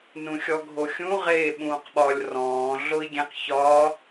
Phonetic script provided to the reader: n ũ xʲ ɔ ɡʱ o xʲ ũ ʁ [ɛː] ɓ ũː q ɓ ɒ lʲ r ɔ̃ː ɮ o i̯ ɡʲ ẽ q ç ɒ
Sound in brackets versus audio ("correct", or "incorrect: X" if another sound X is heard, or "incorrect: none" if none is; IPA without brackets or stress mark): incorrect: eː